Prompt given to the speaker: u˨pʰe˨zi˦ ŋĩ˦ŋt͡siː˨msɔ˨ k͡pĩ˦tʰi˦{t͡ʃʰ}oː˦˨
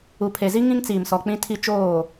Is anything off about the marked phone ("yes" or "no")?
yes